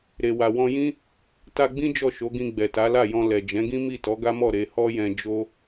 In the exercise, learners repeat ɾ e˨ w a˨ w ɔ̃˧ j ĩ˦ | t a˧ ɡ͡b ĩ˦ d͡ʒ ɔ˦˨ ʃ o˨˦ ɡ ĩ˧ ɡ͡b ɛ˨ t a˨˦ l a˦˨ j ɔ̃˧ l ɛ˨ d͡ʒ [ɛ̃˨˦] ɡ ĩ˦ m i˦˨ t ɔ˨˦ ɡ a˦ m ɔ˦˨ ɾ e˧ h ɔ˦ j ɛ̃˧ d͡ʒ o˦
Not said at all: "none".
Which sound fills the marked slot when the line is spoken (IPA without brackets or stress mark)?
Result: ɛ̃˨˦